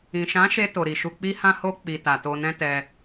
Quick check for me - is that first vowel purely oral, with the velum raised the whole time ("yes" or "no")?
no